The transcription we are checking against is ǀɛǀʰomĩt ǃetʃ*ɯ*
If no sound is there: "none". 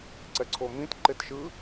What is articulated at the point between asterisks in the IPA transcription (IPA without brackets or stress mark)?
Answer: ɯ